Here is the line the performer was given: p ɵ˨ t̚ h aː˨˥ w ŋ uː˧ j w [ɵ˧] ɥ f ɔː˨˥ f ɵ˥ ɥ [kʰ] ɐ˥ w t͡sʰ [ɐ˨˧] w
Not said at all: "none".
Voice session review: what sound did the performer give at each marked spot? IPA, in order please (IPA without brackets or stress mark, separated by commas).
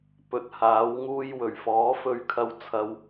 ɵ˨˩, kʰ, ɐ˥